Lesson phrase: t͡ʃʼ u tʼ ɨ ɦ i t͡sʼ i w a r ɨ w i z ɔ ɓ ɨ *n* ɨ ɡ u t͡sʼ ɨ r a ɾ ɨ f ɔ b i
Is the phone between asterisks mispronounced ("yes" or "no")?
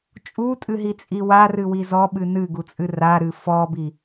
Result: no